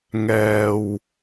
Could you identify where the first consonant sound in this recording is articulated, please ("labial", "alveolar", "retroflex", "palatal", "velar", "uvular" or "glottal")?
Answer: velar